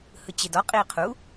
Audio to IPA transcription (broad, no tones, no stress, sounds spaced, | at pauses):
h ɯ t͡ɕ e d ɔ qʼ iː qʰ u